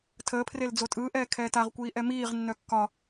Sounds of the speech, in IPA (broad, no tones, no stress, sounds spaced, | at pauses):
tʰ əː pʰ r e l d͡z o tʼ ɯː ʔ ɛː kʰ ɛː t a ʁ kʷ iː ʔ ɛ m iː ʁ nː œ kː ɒ